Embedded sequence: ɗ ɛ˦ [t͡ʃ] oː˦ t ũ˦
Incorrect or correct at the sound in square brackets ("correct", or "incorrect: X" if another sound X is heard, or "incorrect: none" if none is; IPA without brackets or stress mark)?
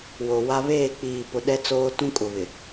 incorrect: t͡s